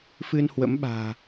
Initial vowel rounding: unrounded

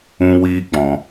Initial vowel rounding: rounded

